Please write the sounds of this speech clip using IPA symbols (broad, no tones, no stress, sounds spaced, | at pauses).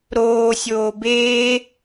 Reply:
ɾ oː sʲ oː b eː